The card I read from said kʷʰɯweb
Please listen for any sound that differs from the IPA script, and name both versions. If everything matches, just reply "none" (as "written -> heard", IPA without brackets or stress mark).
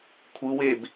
none